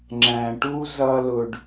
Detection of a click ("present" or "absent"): present